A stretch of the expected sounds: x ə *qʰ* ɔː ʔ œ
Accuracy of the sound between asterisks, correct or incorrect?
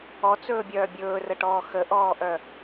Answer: incorrect